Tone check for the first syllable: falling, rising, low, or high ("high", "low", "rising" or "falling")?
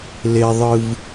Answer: high